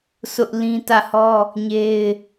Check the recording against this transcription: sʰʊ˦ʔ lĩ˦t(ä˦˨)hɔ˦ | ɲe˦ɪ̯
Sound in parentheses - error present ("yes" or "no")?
no